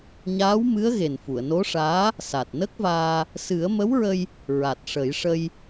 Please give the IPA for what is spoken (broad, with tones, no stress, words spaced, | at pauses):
ɲaː˧˥wmɨ˧˥ə̯ ɣe˨˩nfu˨˩˨ə̯no˧˥ʂaː˧˥ | sa˨˩t̚nə˦˥k̚vaː˧ | sɨ˨˩˦ə̯mə˧˥wɹə˧j | ɹa˨˩t̚ʂə˨˩˦jʂə˧j